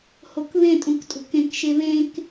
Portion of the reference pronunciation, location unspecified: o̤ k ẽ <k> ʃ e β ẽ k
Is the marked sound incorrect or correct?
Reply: correct